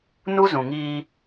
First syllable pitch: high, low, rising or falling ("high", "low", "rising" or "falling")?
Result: high